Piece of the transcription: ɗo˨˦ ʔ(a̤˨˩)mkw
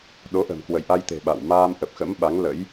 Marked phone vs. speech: incorrect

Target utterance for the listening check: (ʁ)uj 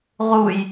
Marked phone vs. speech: correct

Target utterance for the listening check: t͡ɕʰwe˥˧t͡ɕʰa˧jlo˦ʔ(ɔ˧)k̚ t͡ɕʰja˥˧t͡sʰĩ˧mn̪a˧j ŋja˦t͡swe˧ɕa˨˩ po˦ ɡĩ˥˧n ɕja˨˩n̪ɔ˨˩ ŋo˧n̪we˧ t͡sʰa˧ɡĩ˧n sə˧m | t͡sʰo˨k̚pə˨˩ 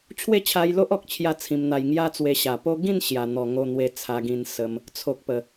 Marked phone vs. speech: incorrect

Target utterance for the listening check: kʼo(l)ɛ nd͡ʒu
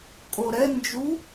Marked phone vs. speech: incorrect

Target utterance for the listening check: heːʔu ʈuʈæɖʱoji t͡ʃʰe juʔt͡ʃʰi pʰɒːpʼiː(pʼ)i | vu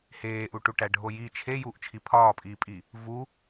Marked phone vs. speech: correct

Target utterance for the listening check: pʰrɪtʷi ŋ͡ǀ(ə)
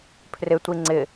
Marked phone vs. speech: incorrect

